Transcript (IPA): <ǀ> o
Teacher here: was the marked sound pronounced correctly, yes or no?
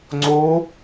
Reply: no